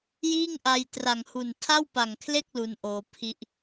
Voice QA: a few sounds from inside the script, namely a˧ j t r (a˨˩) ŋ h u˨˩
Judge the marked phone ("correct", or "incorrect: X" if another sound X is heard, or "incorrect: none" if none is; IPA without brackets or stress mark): correct